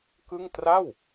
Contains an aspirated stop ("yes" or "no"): no